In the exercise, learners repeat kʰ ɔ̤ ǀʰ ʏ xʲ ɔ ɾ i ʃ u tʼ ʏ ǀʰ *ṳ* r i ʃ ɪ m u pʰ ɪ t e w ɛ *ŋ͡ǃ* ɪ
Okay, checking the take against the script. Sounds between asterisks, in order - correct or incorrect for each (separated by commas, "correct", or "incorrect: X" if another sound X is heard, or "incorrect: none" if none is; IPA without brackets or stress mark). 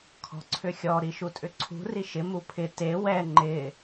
correct, correct